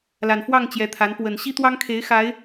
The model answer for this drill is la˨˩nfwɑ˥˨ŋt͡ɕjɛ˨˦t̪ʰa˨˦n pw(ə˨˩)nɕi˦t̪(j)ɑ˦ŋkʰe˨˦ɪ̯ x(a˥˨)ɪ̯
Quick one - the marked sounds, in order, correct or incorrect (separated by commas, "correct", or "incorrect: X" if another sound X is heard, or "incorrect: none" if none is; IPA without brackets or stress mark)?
correct, incorrect: w, incorrect: a˨˦